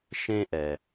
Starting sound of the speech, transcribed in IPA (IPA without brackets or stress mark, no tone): ʃ